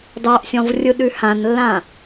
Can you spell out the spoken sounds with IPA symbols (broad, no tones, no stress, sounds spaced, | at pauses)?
d ɑ ʔ sʲ ɔ̃ v rʲ ɯ ɗ ʉ h ã n lː ã